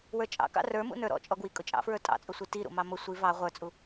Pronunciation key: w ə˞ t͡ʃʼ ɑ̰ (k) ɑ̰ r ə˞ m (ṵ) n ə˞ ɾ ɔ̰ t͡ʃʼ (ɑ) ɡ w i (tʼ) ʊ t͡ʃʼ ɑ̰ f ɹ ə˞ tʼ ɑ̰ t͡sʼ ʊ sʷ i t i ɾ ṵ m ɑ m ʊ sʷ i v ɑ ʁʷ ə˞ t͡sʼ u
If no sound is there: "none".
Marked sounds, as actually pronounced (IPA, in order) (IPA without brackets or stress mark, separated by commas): k, ṵ, ɔ, kʼ